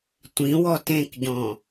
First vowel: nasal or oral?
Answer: nasal